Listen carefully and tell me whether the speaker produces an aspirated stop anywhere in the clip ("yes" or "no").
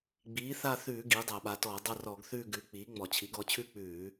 yes